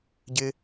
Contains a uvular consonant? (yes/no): no